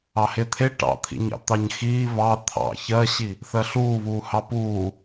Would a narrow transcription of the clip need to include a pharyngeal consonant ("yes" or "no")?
no